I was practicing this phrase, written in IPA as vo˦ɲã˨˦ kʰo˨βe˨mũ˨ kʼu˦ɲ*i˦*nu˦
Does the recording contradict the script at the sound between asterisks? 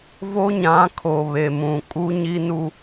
no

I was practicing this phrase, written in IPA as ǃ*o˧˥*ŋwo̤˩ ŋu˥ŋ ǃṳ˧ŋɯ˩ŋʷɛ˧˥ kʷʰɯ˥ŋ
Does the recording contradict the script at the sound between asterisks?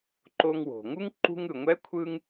yes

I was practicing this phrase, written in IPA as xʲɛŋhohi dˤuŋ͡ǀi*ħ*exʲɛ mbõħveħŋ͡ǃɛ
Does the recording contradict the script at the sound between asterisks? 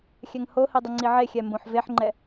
yes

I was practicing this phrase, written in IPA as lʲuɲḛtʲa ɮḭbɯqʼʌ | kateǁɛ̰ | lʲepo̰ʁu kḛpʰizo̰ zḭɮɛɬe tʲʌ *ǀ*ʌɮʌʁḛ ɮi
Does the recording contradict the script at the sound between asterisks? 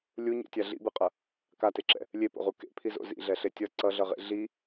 no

